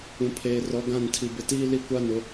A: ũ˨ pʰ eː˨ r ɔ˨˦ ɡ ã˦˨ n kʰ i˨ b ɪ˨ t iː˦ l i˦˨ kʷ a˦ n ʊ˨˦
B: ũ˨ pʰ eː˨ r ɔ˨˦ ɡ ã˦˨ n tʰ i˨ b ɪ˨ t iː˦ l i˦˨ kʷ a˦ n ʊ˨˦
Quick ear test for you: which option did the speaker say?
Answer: B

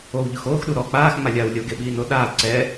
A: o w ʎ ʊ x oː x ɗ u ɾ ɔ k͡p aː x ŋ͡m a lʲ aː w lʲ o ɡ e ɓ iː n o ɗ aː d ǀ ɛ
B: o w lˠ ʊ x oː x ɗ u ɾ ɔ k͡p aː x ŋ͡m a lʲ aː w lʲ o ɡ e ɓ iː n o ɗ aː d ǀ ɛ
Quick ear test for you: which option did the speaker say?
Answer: A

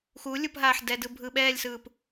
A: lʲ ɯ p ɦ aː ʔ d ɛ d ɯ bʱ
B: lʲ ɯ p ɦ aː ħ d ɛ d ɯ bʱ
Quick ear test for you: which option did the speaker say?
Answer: B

